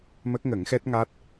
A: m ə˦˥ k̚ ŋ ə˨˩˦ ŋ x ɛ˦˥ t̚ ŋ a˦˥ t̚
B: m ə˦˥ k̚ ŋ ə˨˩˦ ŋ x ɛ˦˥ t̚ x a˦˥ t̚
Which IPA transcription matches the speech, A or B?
A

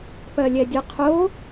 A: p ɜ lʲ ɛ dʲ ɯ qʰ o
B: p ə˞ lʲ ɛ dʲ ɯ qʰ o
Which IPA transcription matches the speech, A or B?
A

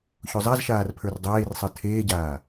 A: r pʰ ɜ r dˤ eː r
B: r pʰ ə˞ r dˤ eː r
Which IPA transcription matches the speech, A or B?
B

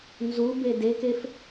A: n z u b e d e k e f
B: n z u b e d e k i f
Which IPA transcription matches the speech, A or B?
A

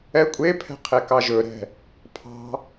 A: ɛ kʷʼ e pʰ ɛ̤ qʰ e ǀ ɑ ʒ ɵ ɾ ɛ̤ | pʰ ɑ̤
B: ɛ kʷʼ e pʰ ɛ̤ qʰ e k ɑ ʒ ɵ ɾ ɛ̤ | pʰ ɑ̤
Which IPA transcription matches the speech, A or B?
B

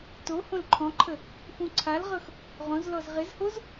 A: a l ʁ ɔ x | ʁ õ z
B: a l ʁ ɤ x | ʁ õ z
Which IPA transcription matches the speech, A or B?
B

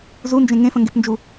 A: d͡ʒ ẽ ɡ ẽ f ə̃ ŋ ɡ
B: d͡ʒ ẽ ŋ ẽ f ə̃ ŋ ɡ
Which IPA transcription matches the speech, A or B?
B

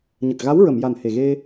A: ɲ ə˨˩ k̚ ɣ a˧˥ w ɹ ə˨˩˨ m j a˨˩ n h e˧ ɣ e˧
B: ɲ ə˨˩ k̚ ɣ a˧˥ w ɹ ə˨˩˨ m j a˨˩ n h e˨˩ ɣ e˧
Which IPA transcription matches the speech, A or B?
B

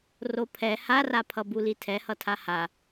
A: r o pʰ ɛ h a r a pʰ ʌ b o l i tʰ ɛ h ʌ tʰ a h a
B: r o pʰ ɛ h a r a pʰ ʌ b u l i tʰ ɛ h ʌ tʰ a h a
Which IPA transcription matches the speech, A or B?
B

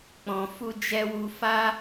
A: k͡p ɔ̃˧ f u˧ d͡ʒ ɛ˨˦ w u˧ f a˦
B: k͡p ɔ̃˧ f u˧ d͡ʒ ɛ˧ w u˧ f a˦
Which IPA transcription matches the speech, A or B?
B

